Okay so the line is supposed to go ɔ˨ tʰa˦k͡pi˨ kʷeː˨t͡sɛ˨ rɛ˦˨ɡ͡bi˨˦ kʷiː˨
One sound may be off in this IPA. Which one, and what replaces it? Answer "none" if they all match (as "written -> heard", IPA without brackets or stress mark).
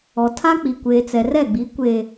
iː˨ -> eː˨